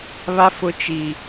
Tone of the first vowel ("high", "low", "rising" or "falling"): high